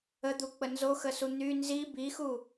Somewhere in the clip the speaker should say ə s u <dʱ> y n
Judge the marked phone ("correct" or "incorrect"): incorrect